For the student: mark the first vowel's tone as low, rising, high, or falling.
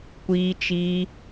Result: high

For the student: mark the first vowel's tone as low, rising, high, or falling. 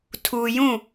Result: low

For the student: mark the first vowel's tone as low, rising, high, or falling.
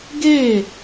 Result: falling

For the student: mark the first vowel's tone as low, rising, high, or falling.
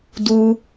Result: high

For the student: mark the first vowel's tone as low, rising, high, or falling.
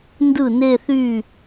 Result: falling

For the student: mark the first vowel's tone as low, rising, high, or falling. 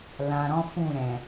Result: low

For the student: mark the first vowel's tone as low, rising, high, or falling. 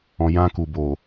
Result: low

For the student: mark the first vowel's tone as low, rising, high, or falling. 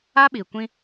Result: high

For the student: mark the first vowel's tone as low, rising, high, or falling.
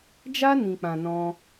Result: high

